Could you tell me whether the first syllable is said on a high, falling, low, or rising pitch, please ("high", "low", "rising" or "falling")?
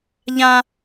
high